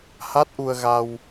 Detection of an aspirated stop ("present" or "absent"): absent